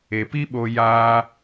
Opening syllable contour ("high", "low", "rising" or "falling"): low